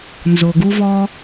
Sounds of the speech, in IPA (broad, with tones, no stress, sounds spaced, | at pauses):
n z o˨ ɡ u˧ v ɔ˧